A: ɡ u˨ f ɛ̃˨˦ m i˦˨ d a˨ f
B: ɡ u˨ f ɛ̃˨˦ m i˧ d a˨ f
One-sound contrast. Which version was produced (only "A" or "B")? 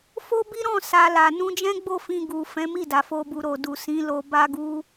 A